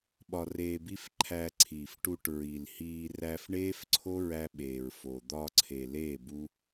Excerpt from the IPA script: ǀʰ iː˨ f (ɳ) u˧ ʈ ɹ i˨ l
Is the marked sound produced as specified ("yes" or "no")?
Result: no